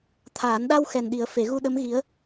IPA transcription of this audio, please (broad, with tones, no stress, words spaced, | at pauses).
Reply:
t̪ʰaː˨˩˦nɗa˧w xɛ˨˩nɗi˨˩˦ə̯ fe˨˩˦ɣu˧ ɗə˧˥m ɣi˧˥ə̯